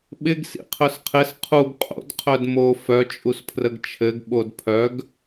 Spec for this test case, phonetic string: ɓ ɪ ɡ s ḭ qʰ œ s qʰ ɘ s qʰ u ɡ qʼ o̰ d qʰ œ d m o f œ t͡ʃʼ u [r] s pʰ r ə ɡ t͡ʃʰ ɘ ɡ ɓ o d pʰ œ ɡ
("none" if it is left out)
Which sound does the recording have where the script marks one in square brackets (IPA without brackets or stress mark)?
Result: none